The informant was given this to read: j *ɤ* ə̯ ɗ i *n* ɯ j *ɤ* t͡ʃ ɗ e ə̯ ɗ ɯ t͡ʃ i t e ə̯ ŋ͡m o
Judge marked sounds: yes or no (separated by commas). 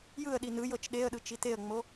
no, yes, yes